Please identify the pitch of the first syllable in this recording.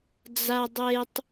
low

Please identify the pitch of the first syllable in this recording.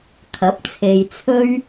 rising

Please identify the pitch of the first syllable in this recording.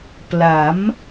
rising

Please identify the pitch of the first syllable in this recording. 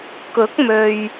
rising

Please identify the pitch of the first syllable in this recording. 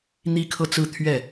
high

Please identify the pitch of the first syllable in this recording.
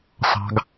high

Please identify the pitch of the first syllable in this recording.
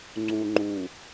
low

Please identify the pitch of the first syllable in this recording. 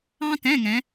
high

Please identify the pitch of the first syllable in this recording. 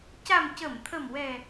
low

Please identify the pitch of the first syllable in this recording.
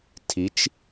rising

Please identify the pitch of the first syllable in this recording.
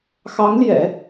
rising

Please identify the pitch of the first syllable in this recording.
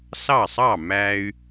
falling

